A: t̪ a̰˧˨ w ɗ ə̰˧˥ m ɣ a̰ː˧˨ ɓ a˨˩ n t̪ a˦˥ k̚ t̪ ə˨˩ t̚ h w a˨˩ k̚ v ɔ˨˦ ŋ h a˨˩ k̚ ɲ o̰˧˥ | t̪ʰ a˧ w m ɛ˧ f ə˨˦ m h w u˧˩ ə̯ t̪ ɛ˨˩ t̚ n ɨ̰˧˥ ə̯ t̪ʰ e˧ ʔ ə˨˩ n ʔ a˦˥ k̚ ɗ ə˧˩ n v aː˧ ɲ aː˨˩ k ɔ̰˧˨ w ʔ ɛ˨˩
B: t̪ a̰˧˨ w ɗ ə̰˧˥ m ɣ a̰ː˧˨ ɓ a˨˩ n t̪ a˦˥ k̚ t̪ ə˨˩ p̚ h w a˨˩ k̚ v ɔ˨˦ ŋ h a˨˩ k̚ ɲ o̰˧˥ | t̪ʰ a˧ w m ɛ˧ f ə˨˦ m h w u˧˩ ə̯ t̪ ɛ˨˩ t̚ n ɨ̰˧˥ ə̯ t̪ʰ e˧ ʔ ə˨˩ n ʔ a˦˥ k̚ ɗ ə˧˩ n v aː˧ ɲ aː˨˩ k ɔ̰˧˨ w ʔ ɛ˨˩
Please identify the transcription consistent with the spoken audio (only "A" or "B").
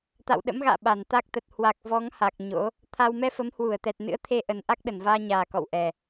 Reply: A